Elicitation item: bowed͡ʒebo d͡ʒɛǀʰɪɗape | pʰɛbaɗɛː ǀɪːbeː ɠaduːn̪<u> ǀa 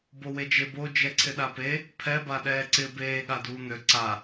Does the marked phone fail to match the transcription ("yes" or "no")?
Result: yes